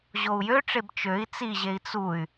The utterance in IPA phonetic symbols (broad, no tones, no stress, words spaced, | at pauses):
ʑou̯jøʈ͡ʂeb t͡ʃøi̯ t͡siʑei̯ t͡suy̯